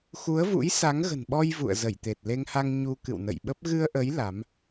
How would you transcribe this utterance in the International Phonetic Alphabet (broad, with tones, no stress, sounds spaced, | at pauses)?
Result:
x u˨˦ ə̯ v ṵ˧˥ j s a˨˦ ŋ ɣ ə̤˨˩ n ɓ ɔ˧ j v ṵ˧˨ ə̯ z ə˧˩ j t̪ e˨˩ t̚ l e˧ ŋ h a˧ ŋ ɲ u˧ k ɨ̰˧˨ w n ə̰˧˨ j ɓ ə˦˥ p̚ ɣ ɨ˧ ə̯ ʔ ə˨˦ j l a˨˦ m